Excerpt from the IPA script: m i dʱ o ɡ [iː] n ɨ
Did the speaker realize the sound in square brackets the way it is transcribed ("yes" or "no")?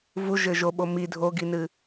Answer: no